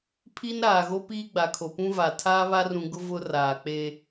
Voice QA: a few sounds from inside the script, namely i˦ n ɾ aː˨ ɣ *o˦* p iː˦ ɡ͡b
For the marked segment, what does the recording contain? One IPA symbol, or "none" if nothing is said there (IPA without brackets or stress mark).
o˦